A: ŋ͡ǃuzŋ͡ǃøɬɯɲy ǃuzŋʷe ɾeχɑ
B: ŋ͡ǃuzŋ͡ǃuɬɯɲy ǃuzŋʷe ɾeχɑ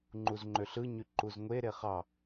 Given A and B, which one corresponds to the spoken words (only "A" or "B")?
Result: A